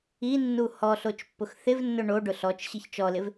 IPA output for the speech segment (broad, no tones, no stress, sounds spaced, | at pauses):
i nː u h ɔ ɬ o t͡ʃ pː ʊ x θ ɪ v nː ʊ ɳ o ɖ ʊ ɬ ɔ t͡ʃ ɕ i ç t͡ʃ ɔ l ɪ v